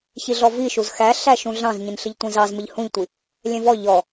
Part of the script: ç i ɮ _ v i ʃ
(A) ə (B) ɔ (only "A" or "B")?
B